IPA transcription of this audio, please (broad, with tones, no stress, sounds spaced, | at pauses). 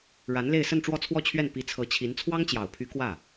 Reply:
ɻ a˧˥ n l e˥˧ ɪ̯ s ə˥˧ n ʈ͡ʂ w ɔ˥˧ t͡sʰ w ɔ˥˧ t͡ɕʰ ɥ ɛ˥˩ n p i˧˥ t͡sʰ ɤ˧˥ t͡ɕʰ i˧˥ n t͡sʰ w ɑ˥ ŋ t͡ɕ j ɑ˨˩ ʊ̯ pʰ y˧˥ k w ä˥˩